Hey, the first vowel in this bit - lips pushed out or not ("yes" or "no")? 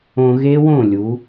yes